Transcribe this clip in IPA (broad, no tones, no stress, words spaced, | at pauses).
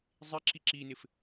zˤɪǁi ǁinɪf